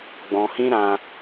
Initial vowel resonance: nasal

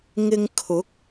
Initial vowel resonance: oral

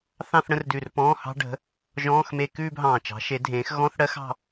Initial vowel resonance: nasal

